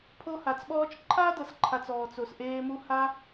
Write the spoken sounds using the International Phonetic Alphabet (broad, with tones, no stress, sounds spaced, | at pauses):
pʰ o˦ h a˨ t͡s ɓ ɔː˦ t͡ʃ ǃʰ aː˦ d ɤ˨ s ǃʰ a˨ t͡s ɔː˨ t͡s o˨ s ʔ eː˧ m u˧ h a˧